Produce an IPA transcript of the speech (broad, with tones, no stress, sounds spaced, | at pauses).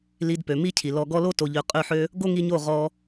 l i˧ d p ø˨ m i˦ cʰ i˨ l ɔ˨ ɡ ɔ˧ l o˦ t o˧ ʎ ø˧ qʼ ø˦˨ ħ ø˦ | ɡ o˦ ŋ i˧ ɲ o˦˨ ʁ ɔ˦